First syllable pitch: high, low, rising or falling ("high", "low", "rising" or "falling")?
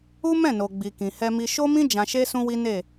high